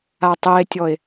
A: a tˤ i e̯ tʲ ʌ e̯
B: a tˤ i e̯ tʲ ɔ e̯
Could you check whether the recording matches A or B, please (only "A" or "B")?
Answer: B